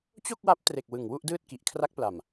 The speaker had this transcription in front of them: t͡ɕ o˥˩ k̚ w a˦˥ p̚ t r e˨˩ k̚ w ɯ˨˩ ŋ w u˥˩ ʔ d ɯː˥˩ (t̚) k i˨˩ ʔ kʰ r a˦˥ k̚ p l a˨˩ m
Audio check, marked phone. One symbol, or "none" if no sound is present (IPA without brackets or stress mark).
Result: t̚